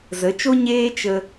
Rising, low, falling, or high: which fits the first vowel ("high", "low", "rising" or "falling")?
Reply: rising